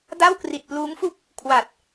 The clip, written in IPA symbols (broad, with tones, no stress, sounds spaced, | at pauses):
d a˥˩ w k r i˨˩ t̚ p l uː˦˥ ŋ f u˥˩ k̚ | kʰ w a˨˩ t̚